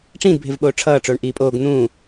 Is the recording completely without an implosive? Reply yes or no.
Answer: no